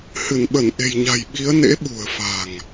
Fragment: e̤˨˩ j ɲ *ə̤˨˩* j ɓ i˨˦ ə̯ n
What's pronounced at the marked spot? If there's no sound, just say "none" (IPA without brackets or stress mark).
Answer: a̤˨˩